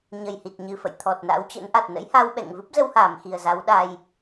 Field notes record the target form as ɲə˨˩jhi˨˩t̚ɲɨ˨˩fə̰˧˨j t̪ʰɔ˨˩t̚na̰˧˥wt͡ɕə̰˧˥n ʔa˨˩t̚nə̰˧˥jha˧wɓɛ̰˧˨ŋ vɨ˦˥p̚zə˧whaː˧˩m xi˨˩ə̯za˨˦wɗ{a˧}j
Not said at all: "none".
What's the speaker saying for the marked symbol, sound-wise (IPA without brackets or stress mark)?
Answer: a˧